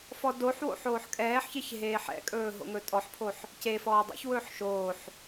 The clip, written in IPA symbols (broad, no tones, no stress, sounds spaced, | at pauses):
f ɔ d o ħ w o̰ ħ oː ħ kʼ ɛː ħ ç e ç ɦ eː ħ ɛ̰ kʼ ɵː ɦ o̰ ŋ ɵ tʼ ɔ ħ pʰ o ħ | c e f ɔː dˤ ɛ̰ ç w ɵː ħ ʃ oː ħ